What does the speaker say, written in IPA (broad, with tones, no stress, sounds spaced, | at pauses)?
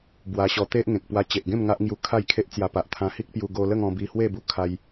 b w a˧ ɕ ɔ˧ t̪ e˦ ʔ ŋ ẽ˨ k̚ p w a˧ t͡ɕ e˨ ʔ ɡ ẽ˥˧ m ŋ a˦ ʔ ŋ j u˧ kʰ a˥˧ j kʰ e˦ ʔ t͡s j a˧ p a˨ ʔ t̪ʰ ã˧ h i˦ k̚ p j u˧ ɡ o˧ l ə˥˧ ŋ ɔ̃˧ b i˧ h w e˥˧ b u˧ kʰ a˧ j